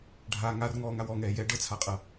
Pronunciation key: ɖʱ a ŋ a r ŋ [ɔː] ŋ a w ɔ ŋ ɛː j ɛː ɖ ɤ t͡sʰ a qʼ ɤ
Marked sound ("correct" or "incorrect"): correct